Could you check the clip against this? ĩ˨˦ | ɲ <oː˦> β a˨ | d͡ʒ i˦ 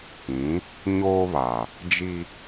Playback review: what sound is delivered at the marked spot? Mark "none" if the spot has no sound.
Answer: oː˦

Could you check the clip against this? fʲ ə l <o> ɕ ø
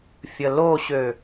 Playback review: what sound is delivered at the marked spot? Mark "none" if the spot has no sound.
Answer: o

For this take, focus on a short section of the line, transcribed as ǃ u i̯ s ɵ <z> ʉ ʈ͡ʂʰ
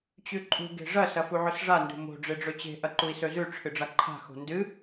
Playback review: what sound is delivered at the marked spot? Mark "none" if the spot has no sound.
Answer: z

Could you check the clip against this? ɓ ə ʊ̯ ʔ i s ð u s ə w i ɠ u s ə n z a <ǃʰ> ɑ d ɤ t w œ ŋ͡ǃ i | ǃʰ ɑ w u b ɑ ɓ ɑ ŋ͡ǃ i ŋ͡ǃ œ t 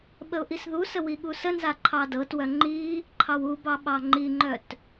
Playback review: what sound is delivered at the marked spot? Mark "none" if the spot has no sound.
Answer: ǃʰ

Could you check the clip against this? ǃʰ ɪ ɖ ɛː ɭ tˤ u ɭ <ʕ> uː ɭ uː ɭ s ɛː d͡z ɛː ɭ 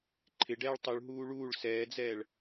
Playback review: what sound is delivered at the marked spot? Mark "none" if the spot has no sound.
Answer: ɦ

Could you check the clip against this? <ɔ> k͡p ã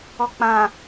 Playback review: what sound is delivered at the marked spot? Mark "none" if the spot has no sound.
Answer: ɔ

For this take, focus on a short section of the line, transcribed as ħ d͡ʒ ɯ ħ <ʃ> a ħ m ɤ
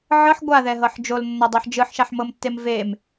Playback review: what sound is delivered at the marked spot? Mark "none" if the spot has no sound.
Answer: ʃ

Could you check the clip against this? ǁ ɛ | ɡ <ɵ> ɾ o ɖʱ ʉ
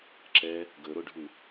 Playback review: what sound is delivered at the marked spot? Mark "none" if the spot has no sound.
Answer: ɵ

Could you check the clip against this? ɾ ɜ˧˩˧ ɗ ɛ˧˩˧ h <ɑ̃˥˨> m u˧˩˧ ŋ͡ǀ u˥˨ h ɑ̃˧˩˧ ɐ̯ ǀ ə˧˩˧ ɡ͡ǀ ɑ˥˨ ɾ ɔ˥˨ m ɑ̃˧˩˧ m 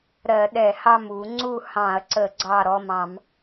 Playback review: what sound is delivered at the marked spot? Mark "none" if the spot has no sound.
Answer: ɑ˥˨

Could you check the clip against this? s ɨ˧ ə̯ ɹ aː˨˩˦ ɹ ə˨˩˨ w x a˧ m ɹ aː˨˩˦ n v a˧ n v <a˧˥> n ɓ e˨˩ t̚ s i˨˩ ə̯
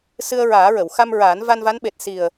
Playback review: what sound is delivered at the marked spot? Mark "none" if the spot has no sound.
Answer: a˧˥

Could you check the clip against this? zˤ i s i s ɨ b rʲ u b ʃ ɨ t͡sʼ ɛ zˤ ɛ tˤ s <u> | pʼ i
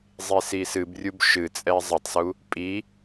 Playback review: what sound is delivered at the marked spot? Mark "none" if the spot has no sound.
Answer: u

